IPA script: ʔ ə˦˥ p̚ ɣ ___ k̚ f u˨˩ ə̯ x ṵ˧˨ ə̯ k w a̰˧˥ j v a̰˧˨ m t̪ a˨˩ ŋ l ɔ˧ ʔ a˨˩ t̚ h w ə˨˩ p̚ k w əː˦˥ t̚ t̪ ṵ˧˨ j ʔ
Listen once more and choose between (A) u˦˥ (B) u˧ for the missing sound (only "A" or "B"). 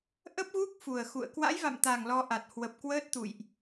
A